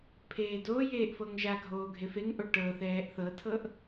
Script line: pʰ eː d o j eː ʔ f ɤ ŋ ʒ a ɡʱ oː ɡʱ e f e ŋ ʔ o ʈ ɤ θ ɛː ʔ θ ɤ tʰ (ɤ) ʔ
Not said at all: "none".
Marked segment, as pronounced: ɤ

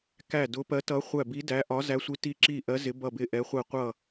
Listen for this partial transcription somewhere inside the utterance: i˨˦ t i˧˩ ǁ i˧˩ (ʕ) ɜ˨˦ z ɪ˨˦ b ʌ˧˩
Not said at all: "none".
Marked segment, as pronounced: ʔ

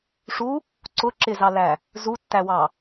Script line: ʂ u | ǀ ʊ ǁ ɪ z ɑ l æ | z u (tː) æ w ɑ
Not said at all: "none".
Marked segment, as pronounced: tː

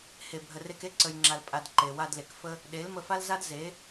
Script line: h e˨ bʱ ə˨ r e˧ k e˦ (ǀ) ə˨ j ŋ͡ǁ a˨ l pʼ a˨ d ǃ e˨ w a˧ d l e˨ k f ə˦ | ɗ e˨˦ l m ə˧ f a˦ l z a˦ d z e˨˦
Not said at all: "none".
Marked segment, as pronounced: ǀ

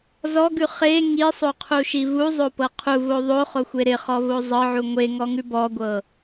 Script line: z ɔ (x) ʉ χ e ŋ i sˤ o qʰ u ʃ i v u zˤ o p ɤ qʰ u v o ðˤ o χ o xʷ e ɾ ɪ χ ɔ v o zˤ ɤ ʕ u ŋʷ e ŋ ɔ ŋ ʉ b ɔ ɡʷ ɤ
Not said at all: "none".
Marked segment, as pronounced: ɡ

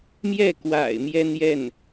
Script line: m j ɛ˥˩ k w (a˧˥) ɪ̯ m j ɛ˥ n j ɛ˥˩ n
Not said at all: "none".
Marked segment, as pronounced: a̰˨˩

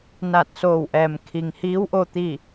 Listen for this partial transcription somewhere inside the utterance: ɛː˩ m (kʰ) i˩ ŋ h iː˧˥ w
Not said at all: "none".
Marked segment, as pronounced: kʰ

